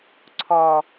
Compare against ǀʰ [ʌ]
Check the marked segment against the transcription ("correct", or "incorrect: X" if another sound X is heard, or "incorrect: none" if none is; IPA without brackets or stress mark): incorrect: ɔ